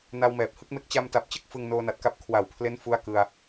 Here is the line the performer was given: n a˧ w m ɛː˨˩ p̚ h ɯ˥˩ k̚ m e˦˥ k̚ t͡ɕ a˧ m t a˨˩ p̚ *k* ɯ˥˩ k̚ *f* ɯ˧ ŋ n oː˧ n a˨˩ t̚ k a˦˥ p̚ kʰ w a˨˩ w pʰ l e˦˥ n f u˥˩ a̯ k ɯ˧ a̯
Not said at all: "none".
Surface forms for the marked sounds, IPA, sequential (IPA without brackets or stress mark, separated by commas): t͡ɕ, f